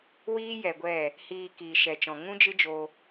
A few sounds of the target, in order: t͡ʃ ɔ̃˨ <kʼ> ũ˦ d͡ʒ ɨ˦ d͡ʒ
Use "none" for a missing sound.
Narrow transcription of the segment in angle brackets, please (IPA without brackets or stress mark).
ŋ